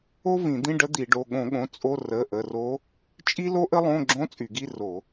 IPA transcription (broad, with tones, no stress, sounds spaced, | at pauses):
o˥ v ĩ˧˩˧ d̪ ĩ˧˥˧ ɖ ə˧˥ d̪ i˧˩˧ ɖ o˩˧˩ ɠ õ˧˩˧ ɠ õ˩˧˩ t͡sʼ o˧˥˧ r ə˩˧˩ ʔ ə˩˧˩ r o˧˥ | t͡ʃʼ i˥ l o˥ ʔ ə˥ lˠ õ˧˥˧ ɡ͡ǁ õ˧˥˧ t͡sʼ y˧˩˧ ɡ i˧˥˧ r o˧˩˧